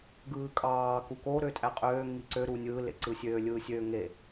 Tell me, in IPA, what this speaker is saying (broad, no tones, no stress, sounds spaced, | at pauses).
ɡ ɯː kʼ ɑː k u k o ɾ ø tʼ æ qʼ øː ŋ i ǀ ø ɾ uː nʲ ɯː l ḛ ǀ ɯ sʲ øː lʲ ɯː sʲ øː ŋ e